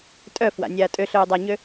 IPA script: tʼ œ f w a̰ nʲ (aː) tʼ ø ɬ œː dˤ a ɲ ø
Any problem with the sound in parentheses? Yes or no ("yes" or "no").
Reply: no